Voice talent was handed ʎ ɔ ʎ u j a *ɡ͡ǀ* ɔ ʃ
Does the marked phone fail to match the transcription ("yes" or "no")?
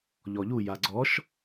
no